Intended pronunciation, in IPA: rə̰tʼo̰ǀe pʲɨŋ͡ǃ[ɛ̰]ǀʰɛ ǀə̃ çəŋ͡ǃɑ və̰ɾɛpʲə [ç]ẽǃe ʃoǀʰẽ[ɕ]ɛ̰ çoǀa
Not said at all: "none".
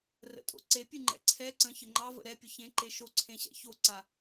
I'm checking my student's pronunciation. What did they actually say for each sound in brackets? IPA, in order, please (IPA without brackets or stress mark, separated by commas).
ɛ̰, ç, ɕ